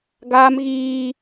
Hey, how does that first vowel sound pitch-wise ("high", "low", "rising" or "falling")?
high